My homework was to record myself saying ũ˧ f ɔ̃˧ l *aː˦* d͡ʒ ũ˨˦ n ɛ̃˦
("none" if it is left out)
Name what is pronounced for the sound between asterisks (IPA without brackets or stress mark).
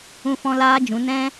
aː˦